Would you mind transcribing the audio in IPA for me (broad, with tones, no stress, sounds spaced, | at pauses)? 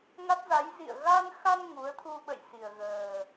ŋ a˦˥ t̚ z a˨˦ j z ḭ˧˨ ə̯ ɣ a˧ n x a˧ n ŋ u˨˦ ə̯ t̪ʰ u˧ ɓ ə̰˧˨ j s i˨˩ ə̯ ɣ əː˨˩